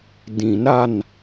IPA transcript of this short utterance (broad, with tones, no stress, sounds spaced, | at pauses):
d ĩ˨˩˦ n ɾ a˩˧˩ n